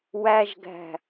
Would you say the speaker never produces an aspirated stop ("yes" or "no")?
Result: yes